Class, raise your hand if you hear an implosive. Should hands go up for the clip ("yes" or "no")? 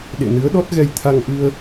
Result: yes